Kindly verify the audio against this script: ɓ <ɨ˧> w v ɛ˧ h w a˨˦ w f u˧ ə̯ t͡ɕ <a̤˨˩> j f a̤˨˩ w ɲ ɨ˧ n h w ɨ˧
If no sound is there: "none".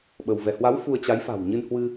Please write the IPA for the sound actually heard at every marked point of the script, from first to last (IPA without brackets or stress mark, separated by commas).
ə˧, a˨˦